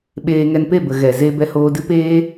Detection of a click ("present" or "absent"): absent